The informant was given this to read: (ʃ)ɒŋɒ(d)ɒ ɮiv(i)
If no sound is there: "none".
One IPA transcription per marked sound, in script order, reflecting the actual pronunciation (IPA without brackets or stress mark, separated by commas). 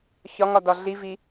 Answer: ç, d, i